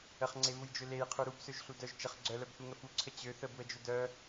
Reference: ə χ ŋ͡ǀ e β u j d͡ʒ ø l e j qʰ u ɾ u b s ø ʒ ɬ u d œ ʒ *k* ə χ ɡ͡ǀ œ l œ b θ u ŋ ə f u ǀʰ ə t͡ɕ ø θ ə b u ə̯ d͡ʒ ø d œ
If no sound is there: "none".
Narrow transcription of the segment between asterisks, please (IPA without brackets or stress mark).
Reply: t͡ʃ